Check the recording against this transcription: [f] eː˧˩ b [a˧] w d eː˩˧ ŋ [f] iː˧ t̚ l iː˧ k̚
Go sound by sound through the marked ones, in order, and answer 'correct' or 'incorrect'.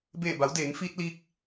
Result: incorrect, incorrect, correct

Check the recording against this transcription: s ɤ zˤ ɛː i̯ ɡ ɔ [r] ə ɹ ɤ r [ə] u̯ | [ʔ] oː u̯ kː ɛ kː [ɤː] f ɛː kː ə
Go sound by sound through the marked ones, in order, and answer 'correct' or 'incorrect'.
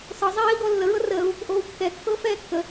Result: incorrect, incorrect, correct, correct

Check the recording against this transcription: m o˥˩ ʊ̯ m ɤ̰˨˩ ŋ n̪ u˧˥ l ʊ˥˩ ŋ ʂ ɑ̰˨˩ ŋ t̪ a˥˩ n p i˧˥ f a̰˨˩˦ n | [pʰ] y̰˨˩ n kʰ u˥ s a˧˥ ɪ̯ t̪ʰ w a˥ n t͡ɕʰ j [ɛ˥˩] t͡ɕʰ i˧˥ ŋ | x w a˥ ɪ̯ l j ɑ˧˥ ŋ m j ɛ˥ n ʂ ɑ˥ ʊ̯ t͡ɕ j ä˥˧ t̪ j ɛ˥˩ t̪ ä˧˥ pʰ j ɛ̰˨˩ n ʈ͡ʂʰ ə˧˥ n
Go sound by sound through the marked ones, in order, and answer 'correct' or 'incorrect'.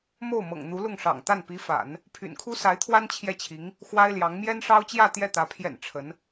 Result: correct, correct

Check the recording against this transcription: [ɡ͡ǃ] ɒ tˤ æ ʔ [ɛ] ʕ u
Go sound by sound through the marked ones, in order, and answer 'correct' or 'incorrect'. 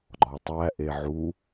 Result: correct, incorrect

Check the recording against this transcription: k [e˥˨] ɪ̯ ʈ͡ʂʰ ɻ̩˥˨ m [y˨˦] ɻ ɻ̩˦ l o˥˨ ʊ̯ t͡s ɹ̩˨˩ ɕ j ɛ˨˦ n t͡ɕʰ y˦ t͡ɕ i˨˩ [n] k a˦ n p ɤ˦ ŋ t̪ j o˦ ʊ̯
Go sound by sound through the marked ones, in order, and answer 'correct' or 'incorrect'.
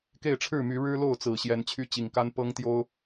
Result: correct, correct, incorrect

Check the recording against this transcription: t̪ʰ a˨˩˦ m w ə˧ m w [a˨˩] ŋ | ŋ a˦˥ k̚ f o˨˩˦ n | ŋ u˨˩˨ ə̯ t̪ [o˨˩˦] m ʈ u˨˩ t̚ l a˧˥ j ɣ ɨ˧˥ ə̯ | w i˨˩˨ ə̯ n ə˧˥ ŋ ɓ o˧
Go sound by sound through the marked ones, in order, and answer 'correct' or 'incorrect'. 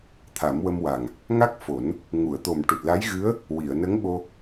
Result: correct, incorrect

